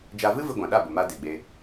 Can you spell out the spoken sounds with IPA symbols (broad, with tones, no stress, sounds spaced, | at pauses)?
d͡ʒ a˧ v ɨ˦ v ɨ˧ ɡʷ ã˨ ɗ a˦˨ b ə˨ m a˧ d e˨ ɡ͡b e˧